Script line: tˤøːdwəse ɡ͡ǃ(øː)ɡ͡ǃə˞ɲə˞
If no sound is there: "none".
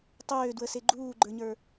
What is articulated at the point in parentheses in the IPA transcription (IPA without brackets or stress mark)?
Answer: uː